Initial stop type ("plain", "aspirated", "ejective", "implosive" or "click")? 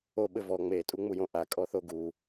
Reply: implosive